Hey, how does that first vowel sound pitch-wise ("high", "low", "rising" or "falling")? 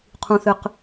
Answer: low